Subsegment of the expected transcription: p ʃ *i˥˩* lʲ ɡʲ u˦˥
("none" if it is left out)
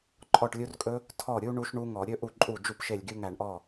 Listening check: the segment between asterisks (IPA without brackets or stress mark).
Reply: e˥˩